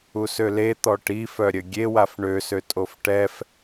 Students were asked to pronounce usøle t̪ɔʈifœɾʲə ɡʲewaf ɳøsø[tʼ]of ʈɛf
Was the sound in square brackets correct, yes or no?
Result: yes